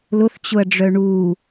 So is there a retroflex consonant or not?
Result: yes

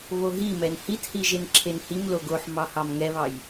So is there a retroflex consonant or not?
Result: no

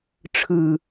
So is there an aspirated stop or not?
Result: yes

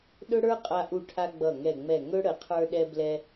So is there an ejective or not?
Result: yes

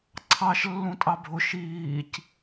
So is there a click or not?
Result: yes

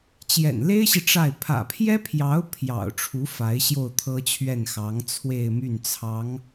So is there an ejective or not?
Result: no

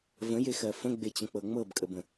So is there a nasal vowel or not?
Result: yes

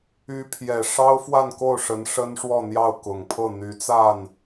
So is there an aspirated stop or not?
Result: yes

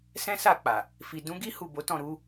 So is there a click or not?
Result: no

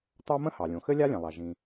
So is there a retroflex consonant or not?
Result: no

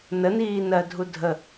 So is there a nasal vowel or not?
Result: no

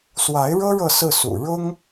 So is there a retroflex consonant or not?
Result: yes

